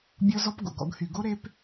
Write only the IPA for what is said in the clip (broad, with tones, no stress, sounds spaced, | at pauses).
bʲ ɔ˦ z ɔ˦ p ɡ o̰˨ ɡ ɔ̰˧ ɡ h y˨ ɡ o˦ ɾ e˧ p